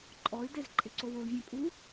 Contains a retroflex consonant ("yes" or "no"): no